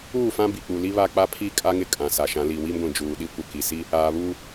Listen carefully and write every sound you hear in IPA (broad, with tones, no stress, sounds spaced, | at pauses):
uː˦˨ f ã˦ b i˨ k͡p u˨ l i˦ β a˦ k͡p a˦ pʰ i˦ kʼ a˦ ŋ ɪ˦ kʼ ã˨ s a˨ ʃ ã˨˦ l i˨ w i˦ m ɡʷ ĩ˨ d͡ʒ uː˨ ɗ i˦ kʷ ɪ˨ k i˨ s i˦ | aː˨ β uː˦